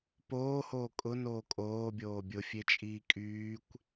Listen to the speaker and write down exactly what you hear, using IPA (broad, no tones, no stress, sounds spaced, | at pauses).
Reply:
p oː h oː kʼ ʊ n oː kʼ oː bʲ oː bʲ ʊ fʲ e t͡ʃʼ iː kʼ yː kʷ